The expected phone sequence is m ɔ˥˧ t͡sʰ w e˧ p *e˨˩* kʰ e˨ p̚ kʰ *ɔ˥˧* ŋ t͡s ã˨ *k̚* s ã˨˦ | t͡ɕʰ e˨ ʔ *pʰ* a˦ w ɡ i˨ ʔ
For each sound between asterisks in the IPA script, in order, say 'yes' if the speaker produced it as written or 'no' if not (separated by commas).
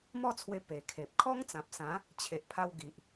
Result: yes, no, no, yes